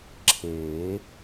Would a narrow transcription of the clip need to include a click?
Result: yes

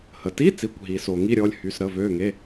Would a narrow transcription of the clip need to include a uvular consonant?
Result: no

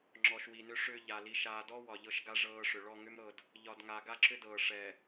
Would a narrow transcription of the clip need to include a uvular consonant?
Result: no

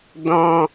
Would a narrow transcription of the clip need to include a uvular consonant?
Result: no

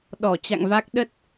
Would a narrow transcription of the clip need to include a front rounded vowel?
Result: no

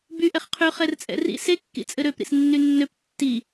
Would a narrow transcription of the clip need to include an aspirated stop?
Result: yes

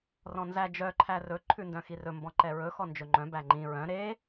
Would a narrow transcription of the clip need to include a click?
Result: yes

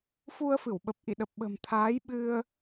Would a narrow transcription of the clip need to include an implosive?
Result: yes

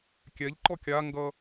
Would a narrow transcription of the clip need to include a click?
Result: yes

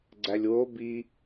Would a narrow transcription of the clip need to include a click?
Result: yes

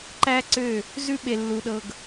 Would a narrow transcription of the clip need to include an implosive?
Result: yes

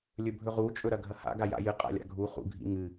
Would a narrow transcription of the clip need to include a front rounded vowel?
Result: no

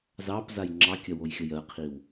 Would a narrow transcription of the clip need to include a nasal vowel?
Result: no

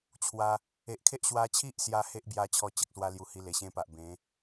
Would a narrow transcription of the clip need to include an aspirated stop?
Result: yes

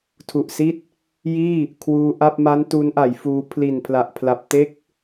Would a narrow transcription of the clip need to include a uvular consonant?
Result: no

